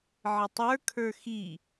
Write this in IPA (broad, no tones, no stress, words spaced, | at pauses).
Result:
ʕɪtˤə˞kʰə˞ xi